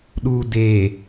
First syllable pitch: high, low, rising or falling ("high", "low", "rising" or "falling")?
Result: low